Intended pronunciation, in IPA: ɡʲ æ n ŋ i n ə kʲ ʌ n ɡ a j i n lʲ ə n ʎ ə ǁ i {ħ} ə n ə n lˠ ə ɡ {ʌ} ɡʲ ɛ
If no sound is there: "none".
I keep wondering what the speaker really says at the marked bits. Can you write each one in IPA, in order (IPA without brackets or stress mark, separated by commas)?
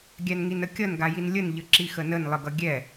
x, ʌ